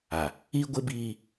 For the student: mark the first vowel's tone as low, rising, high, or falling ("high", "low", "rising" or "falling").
low